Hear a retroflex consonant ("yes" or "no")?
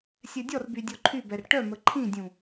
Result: yes